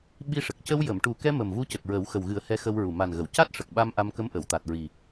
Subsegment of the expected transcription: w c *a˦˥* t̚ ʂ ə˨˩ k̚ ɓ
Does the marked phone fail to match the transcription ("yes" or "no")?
no